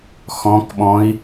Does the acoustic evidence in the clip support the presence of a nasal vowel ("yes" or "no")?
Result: yes